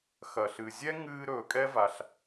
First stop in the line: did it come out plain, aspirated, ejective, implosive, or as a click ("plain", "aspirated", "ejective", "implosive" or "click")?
ejective